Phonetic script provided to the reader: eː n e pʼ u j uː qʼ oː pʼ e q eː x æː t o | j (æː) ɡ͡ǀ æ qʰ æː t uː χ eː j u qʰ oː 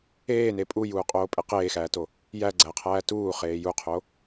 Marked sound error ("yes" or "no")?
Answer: yes